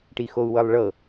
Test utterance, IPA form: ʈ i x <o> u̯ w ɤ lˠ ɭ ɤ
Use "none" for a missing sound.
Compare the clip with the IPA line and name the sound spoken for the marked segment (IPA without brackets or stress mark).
o